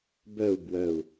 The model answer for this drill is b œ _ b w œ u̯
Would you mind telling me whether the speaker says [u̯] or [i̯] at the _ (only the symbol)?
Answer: u̯